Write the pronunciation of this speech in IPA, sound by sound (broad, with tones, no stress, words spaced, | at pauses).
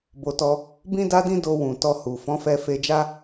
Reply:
bo˨tɔ˧ | bĩ˦da˦dĩ˦ do˧ wũ˨ tɔ˧hu˨ fɔ̃˨˦fɛ˧fe˧d͡ʒa˦